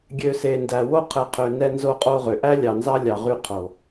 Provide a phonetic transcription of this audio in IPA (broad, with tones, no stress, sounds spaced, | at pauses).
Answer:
ɡʲ ø˨ s e˨ n d æ˨ w o˦ qʰ ɛ˨ qʰ ø˨ n ɛ˦ n z o˦ qʼ o˦ ʁ ø˨ ʔ æ˦ lʲ ɑ˨ n z ɑ˦ lʲ ɑ˨ ʁ y˦ qʰ o˨